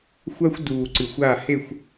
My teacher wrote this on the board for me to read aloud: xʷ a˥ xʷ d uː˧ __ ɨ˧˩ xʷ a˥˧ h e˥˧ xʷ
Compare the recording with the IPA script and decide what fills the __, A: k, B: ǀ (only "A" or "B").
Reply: B